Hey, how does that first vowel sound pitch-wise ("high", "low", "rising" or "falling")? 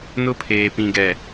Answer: high